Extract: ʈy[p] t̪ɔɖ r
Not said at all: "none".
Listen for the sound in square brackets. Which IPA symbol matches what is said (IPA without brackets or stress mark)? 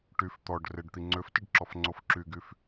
f